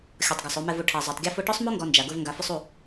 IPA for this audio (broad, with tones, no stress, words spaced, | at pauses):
xʲɔ˨tˤɡa˨sˤ o˨mɛ˨v u˨ ʈʰa˨ zˤɛ˨tˤɡʲɔ˧fo˧ ʈɔ˦sˤmo˦ ŋɡɔ˧nd͡ʒa˨ ɡʊ˧v ŋɡa˨fʊ˧sˤu˦˨